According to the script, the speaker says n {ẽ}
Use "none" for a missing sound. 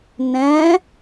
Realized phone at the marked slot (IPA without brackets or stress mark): ɛ̃